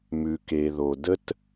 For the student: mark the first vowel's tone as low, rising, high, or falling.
low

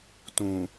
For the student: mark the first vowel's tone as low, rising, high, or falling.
low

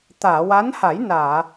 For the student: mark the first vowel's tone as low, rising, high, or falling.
low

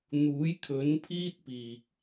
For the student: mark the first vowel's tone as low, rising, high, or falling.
rising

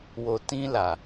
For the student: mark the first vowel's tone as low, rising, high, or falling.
low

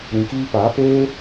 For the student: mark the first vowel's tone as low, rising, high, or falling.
low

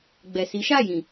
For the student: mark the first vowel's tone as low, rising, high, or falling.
low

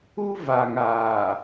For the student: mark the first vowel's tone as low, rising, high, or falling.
high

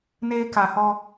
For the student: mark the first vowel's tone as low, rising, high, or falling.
high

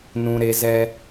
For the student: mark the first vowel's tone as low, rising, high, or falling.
high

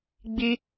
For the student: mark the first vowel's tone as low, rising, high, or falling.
high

